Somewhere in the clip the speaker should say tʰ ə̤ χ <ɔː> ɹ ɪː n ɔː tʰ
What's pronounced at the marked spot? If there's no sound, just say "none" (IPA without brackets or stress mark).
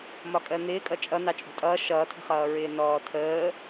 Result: ʌː